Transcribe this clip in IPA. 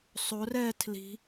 sˤ o r ɛ tʰ l i̤

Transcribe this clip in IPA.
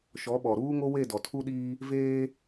ʃ ɔ˨˦ ɓ ɔ˨ ɾ uː˦ ŋ o˦ w e˦˨ d ɔ˨ tʰ u˦ ɗ iː˦ | v eː˦

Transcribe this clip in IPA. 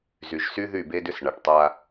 z y˨ ʒ s y˦ ð y˦˨ b e˦ d ʏ˦ s ɳ a˨ ʈ tˤ a˦

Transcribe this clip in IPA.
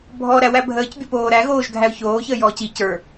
bʱ ɔ ɾ æ w æ bʱ əː c bʲ o p oː ɾ æ ɣ oː ʒ ɡʱ æ ʊ̯ ç oː ç əː j ɔː c i c ə˞

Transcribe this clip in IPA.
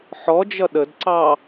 ħ ɔ d͡ʒ ʌ ɗ ə d ǀ ɑ

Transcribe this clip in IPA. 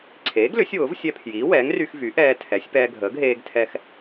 ǀʰ eː˩˥ ɡ l ʏ˩˥ sʲ w ʊː˩˥ v sʲ ɛ˧ pʰ j iː˩˥ w ɛː˩˥ ŋ r y˧ x v y˩˥ ʔ ɛː˧ tʰ ɛ˩˥ sʲ p ɛː˧ ɡʱ əː˩˥ ɡ ɦ eː˧ ɡ tʰ ɛ˧ x

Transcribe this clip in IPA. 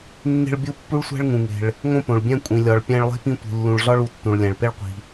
nː e̤˦ ɭ bʲ u˦ pː u˥ ɭ sʷ æ̤˥ ɭ ŋ ũ˩ ŋ e̤˩ ɭ | ŋ õ˦ p õ˩ ɭ bʲ æ̃˦ kʷʼ ĩ˩ lʲ ɒ˩ ɭ pʲ æ̃˦ ɭ lˠ e̤˥ p ĩ˦ tʷ i̤˩ lː ũ˨ ɭ ɮ ɒ˥ ɭ u˩ tː ũ˩ ɭ lʲ æ̃˩ ɭ p e˥ ɭ qʷ i̤˩

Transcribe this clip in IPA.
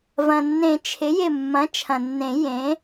v ɐ̃˩ nː ẽ˨˩˦ t͡ʃʰ ɪ˩˥ j ɪ˧˩ mː ɐ̃˩˥ t͡ʃʰ ɐ̃˩ nː ẽ˨˩˦ j ẽ˩˥

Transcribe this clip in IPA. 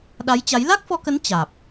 ɗ a˨˦ j t͡ɕ a˨˦ j l a˦˥ k̚ f ɔ˧ k ə˨˦ n t͡ɕ aː˨˩ p̚

